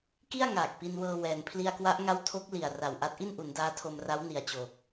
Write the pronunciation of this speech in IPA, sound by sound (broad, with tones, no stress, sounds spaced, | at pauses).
k i˥˩ a̯ ŋ aː˨˩ k̚ p i˧ n w ɤː˧ w ɛː˧ n pʰ l i˧ a̯ k w a˦˥ ʔ ŋ a˦˥ w tʰ o˦˥ k̚ l i˨˩ a̯ r a˨˩ w ʔ a˦˥ t̚ ʔ i˥˩ n ʔ u˩˦ n d aː˦˥ tʰ o˧ m r a˦˥ w n i˨˩ a̯ t͡ɕ oː˨˩ k̚